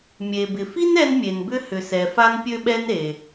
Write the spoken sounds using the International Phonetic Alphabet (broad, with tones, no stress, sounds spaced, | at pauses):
mʲ e˩ b ɪ˩ f i˥ n ɛ˥ n mʲ e˩ n b ʏ˥ h ʏ˩ s ɛ˩ f a˥ n pʲ ø˥ ɓ ɛ˥ n ɾ e˩